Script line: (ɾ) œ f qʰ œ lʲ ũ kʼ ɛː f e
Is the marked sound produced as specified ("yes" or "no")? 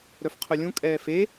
yes